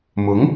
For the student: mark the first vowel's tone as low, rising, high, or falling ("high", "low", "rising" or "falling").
rising